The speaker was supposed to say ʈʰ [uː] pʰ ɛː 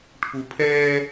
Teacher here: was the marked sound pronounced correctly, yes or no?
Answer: no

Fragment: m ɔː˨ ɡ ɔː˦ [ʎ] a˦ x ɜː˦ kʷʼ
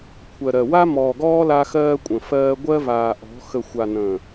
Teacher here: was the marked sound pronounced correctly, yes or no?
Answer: no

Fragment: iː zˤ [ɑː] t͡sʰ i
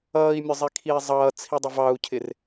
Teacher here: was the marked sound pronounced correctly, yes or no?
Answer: no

